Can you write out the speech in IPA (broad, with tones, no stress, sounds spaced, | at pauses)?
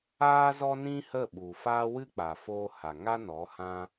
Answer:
aː˦ z ɔ˦ n ĩ˦ h ə˦˨ ɓ u˨ f aː˦ w ɨ˦ k͡p a˨ f oː˧ h a˨ ŋ a˦ n ɔ˨˦ h ã˦